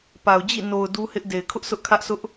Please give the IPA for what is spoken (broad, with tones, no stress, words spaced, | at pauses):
pa˨ʊ̯d͡ʑḭ˦˨ no˨ʊ̯ du˦hɪ˦ʔ de˨ɪ̯kʰʊ˦ʔsʊ˦ʔ kʰä˦ʔsʊ˦ʔ